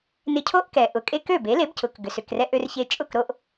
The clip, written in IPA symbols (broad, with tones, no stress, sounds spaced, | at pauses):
n ɪ˧ cʰ o˥ ʔ k ɛ˩ ʔ ʊ˩ kʼ e˥ k ø˥˩ b e˩˥ l e˩˥ b c ʊ˩ k ɡ ʏ˩ s ʏ˩ k r ɛ˧ ʔ ø˧ r ç e˧ t͡ʃʼ ʊ˥˩ k ɾ o˧ ʔ